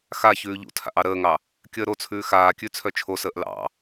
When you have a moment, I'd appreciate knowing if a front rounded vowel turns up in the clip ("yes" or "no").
yes